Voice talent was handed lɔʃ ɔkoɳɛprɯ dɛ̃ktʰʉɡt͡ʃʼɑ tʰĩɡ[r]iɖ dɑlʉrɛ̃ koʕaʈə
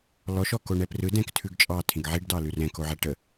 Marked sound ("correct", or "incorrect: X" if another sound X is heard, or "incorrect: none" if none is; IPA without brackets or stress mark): incorrect: ʕ